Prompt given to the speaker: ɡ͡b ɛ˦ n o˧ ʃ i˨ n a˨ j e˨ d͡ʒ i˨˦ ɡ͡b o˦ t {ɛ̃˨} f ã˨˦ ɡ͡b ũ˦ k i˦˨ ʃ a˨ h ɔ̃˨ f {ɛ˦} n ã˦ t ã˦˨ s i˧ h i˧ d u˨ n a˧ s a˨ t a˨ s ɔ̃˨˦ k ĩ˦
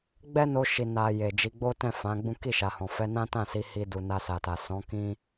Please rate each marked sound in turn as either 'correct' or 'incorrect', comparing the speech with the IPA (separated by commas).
incorrect, incorrect